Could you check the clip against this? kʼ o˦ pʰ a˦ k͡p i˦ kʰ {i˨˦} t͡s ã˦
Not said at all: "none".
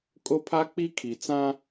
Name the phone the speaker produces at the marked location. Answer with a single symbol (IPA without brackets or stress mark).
i˨